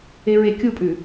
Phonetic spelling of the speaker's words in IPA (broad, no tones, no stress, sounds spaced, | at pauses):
e ɹ e kʲ u pʼ ʉ